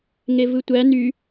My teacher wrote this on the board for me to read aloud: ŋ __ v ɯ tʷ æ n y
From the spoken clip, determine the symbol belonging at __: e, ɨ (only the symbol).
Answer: e